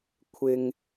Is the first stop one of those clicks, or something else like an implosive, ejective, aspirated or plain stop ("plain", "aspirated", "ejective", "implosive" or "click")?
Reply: aspirated